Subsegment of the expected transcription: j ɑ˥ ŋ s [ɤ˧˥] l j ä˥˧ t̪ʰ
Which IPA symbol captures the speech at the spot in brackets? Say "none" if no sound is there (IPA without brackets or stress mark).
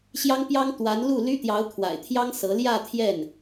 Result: ɤ˧˥